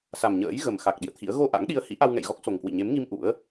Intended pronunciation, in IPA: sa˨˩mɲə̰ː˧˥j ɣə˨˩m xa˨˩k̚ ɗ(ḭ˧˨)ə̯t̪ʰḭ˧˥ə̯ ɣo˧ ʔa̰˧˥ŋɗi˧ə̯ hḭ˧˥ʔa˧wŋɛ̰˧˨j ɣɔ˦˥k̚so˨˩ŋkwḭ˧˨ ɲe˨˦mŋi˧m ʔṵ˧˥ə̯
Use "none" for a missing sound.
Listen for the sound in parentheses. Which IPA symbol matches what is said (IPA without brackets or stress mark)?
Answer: ḭ˧˨